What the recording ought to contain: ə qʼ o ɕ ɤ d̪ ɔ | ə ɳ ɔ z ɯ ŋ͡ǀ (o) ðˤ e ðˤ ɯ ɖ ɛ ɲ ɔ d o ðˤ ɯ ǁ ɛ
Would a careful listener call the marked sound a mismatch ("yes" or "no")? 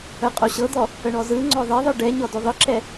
yes